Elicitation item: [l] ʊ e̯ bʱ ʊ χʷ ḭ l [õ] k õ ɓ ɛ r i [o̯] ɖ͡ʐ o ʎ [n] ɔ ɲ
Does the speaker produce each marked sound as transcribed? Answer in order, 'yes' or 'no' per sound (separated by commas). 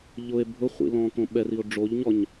no, no, yes, no